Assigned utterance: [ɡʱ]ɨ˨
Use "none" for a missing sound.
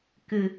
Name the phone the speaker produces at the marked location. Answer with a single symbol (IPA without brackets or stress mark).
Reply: k